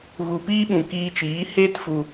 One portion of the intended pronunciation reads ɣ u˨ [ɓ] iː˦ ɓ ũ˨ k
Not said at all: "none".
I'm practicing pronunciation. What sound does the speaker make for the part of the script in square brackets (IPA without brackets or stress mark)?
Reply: p